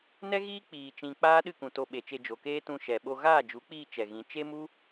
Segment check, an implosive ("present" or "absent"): present